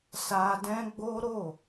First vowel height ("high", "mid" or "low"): low